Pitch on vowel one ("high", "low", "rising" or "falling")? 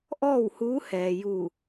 falling